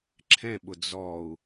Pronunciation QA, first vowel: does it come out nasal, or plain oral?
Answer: nasal